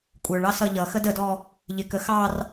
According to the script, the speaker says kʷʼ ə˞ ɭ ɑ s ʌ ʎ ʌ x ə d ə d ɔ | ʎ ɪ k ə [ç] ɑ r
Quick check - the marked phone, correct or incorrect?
incorrect: x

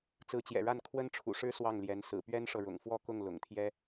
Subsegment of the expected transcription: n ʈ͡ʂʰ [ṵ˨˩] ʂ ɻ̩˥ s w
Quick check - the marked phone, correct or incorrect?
correct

